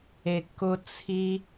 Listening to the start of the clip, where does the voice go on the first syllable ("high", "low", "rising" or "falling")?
low